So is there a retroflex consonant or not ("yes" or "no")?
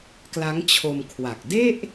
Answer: no